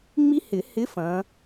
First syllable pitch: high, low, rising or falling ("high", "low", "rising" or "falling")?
high